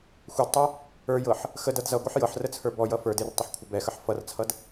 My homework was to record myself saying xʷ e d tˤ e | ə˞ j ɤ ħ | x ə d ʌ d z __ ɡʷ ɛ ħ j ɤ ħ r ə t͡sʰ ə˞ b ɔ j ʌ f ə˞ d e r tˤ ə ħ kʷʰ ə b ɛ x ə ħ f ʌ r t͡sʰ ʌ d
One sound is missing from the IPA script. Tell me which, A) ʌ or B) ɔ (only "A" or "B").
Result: A